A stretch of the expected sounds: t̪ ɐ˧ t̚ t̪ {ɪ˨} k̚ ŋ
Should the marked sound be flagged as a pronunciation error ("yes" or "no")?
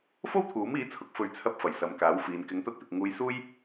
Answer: no